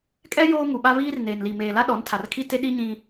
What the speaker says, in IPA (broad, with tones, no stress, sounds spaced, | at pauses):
kʼ ɛ˦ j oː˦ ŋ u˨ ɓ a˦ β iː˦ r n eː˨ n l i˨ m eː˨ l a˦ ɗ ɔ˨˦ n tʰ a˨ r kʰ i˦ t e˦ ɗ i˦ ɲ ĩ˦